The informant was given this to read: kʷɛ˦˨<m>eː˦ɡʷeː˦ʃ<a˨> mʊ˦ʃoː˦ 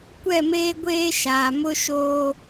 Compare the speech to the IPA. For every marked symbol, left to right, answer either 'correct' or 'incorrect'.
correct, incorrect

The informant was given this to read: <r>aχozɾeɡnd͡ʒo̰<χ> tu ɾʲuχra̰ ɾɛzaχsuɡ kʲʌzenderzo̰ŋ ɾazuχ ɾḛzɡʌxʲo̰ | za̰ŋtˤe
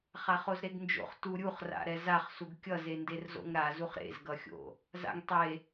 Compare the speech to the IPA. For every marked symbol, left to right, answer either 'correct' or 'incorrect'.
incorrect, correct

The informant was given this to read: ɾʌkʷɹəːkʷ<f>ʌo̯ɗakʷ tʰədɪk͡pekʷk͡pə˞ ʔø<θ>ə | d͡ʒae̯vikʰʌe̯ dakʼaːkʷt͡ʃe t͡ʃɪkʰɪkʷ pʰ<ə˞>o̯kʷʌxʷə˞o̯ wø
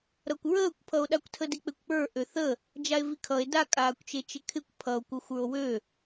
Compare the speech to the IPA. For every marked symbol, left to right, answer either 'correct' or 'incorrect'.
incorrect, correct, incorrect

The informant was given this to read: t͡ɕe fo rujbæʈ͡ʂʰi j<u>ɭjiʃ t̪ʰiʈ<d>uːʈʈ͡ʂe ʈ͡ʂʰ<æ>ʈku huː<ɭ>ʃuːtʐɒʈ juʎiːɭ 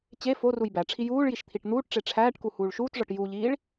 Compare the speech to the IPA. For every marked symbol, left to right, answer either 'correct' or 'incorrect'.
incorrect, incorrect, incorrect, correct

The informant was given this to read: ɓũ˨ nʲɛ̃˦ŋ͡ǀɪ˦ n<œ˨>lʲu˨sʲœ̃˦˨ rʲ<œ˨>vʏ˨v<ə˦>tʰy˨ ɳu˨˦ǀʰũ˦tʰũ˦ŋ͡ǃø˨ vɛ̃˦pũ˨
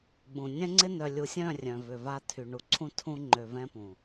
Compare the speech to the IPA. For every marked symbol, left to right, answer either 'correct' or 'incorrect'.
correct, incorrect, incorrect

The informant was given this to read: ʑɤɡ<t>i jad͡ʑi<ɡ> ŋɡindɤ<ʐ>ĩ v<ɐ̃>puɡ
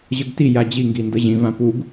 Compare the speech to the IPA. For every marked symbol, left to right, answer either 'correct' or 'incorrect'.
correct, incorrect, incorrect, incorrect

